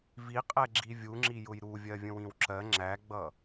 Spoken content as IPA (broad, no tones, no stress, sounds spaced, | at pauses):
v i qʼ ɛ ɡ͡ǁ i vʲ u ŋ͡ǁ i j ʊ j ɾ u vʲ ɜ vʲ ə̃ w ĩ w ǁ ɜ ŋ͡ǁ æ ɡ͡b ʌ